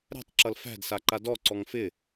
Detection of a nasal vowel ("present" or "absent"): absent